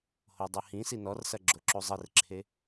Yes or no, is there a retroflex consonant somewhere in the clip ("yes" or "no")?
no